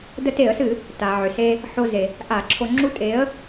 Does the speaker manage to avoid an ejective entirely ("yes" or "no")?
no